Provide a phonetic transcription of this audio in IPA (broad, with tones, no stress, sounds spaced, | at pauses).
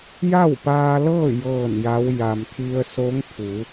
j a˥˨ w p aː˧ l ɤː˥˨ j ɤː˥˨ n j a˧˥ w j a˩ m t̪ʰ i˧ ə̯ s o˧˥ ŋ pʰ u˩˧